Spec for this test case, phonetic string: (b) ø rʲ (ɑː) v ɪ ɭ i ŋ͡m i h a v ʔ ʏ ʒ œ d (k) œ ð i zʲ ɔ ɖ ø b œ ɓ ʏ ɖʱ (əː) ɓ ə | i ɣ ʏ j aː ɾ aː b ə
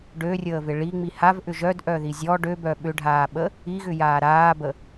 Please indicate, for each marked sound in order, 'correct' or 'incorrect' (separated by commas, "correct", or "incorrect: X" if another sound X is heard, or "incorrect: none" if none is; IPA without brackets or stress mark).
incorrect: ɖ, incorrect: əː, incorrect: ʔ, incorrect: aː